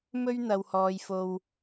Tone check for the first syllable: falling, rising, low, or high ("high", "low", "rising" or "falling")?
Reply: high